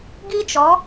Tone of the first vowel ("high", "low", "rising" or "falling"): high